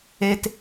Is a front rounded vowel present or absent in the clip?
absent